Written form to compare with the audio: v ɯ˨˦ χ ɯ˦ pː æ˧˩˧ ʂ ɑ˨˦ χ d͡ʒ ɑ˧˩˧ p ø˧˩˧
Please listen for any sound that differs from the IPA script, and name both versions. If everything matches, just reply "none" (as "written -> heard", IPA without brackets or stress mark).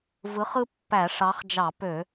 none